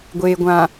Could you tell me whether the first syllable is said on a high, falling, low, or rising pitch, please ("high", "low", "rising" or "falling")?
low